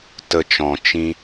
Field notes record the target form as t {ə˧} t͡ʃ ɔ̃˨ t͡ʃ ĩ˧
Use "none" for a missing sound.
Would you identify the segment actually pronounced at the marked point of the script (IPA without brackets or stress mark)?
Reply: ə˧